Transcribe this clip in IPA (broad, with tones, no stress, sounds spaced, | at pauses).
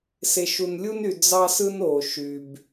s e˨ ʃ u˨ n lʲ u˦ n y˨ d͡z ɑ˦ s ɯ˦ n o˨ ʃ y˨ b